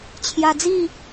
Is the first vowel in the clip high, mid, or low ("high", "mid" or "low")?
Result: low